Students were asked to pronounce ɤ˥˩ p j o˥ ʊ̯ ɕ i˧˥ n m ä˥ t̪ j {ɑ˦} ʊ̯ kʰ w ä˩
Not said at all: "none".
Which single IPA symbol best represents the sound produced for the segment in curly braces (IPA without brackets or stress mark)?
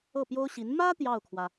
ɑ˥˩